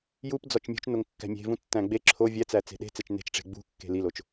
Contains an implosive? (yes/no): yes